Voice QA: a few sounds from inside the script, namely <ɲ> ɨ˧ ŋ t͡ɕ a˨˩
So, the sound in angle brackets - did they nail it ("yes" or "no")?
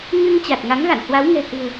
yes